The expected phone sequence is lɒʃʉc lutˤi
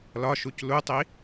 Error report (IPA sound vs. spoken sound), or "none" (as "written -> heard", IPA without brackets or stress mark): ʉ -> u